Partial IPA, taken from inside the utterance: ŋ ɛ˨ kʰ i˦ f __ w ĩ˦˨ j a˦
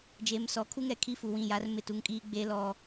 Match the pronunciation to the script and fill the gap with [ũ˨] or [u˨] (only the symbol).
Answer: u˨